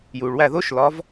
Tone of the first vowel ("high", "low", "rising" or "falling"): low